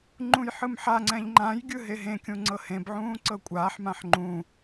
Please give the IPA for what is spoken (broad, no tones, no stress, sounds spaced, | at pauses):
ŋ͡ǃ ũ j ħ ɯ m ħ a ŋ͡ǀ ɛ̃ ʎ ŋ͡ǃ ã j ɡʲ ɯ ɦ e ɦ ẽ kʲ ũ ŋ͡ǀ ɤ h ẽ b ʕ ũː ǀ ɤ kʷʼ aː ħ m ã ħ ŋ͡ǃ ũ